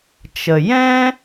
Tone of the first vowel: low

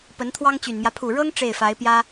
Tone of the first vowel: rising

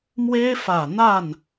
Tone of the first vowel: high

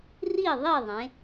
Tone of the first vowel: falling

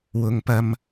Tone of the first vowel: low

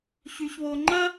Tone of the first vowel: low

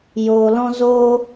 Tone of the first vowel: low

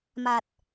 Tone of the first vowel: low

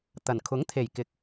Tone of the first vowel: low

